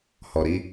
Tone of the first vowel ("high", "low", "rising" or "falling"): low